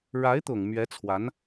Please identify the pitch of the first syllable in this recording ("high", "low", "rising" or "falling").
rising